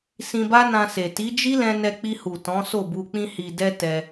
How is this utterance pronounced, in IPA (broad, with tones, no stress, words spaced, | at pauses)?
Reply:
sĩ˧ba˦nã˧se˨ ti˨˦d͡ʒi˦lɛ̃˧ nɛ˧k͡pi˧hu˨ tɔ̃˨˦so˦˨bu˧ k͡pĩ˧hi˨dɛ˧ tɛ˧